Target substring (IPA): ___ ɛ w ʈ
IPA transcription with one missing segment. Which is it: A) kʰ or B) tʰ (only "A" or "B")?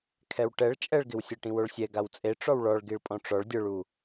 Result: A